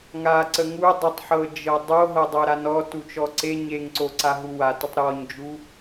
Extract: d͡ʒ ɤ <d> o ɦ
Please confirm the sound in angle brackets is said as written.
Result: no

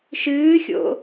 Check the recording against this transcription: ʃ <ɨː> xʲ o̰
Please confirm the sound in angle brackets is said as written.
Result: yes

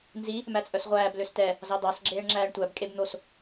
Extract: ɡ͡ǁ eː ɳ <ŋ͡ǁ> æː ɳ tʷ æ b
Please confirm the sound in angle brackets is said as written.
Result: yes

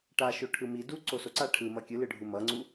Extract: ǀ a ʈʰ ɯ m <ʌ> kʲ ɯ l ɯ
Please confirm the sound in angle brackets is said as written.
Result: yes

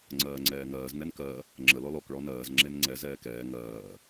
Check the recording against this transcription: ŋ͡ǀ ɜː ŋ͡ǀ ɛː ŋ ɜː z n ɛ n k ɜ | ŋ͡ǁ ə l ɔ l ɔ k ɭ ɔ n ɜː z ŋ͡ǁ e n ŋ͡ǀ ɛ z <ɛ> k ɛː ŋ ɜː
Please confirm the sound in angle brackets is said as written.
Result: no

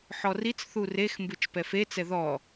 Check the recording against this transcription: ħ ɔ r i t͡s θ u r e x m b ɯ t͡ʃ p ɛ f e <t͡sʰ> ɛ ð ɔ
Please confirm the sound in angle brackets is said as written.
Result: no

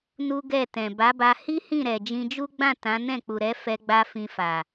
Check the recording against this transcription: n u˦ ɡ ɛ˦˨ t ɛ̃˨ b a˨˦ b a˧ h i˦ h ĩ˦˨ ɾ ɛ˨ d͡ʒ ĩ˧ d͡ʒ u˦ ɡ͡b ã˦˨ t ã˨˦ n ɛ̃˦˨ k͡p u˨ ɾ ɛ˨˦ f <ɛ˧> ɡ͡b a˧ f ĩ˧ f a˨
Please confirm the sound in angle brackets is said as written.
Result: yes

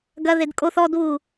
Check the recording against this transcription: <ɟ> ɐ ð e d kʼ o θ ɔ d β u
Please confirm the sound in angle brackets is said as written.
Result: no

